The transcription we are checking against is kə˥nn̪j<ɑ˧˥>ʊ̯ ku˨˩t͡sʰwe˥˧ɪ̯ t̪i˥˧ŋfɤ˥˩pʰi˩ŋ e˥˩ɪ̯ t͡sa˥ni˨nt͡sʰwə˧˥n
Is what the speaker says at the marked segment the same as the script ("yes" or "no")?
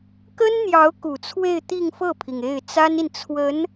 yes